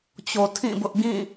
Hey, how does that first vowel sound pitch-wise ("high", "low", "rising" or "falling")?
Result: low